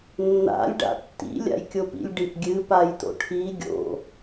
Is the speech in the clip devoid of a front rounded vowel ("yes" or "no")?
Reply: yes